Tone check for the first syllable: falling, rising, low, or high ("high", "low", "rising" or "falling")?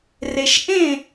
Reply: low